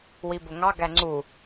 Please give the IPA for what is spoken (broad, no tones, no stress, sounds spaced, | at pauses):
w i b ʊ ŋ ɑ ɡ æ ŋ͡ǀ u